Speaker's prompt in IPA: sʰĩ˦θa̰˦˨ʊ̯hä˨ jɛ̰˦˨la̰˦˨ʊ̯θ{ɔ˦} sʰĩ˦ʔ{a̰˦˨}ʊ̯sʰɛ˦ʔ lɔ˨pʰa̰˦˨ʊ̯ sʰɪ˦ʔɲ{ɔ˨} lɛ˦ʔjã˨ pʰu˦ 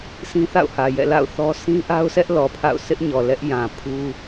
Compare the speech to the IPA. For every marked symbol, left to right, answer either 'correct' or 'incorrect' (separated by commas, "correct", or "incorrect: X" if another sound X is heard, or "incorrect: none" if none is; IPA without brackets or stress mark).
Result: correct, incorrect: a˦, correct